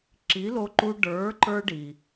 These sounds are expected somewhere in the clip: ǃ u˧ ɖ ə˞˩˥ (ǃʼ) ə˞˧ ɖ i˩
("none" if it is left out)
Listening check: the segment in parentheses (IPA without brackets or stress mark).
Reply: ǃ